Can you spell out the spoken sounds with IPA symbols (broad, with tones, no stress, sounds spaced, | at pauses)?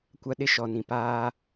kʷ a˦ ɗ ɪ˦ ʃ ɔ˨ n ĩ˨ p aː˦